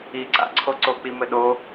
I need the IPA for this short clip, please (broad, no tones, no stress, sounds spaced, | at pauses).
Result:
i ǀ a̰ ǀʰ o ǀ o k͡p i m ɘ ɗ o